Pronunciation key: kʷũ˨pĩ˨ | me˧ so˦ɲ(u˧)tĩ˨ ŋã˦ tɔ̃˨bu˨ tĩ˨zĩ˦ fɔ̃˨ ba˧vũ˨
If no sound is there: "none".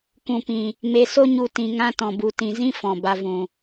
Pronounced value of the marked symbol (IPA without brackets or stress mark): u˧